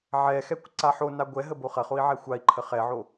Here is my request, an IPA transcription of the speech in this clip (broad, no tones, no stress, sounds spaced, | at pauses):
ʕ ɛ x ɛ kʷ ǀ a ħ o n a ɡʷ ɛ ɦ ə b o χ ɐ χ o i̯ ʕ ɛ xʷ a i̯ ǃʰ ə χ ɛ ʕ o